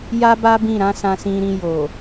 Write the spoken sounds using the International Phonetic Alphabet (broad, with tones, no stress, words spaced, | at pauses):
ja˦ba˦bĩ˦˨ ɾã˨˦ sã˧sĩ˧ɾĩ˧ jo˨